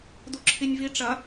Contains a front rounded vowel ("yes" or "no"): no